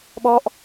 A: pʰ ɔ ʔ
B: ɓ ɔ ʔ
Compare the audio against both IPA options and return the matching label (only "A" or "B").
B